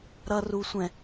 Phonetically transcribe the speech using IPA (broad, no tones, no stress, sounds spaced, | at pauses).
ɾ ʌ r u sʷ ɛ̃